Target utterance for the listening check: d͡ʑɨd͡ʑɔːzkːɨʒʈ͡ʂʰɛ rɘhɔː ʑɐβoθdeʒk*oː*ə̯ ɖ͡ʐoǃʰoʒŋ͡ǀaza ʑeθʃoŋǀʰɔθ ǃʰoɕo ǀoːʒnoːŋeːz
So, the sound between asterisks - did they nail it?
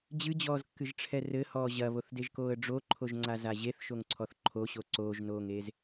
yes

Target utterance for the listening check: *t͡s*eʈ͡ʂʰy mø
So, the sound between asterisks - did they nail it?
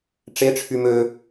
no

